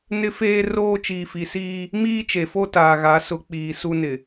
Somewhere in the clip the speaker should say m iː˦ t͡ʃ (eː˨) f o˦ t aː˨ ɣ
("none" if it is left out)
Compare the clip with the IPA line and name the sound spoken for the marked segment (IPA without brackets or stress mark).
e˨